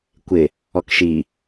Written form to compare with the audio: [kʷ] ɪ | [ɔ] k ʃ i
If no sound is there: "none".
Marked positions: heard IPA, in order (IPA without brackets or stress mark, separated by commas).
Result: kʷ, ɔ